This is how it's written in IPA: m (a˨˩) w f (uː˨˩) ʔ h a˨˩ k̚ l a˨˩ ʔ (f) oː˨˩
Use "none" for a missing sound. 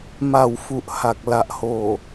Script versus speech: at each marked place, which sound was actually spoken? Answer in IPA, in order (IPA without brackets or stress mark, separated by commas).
a˨˩, u˨˩, h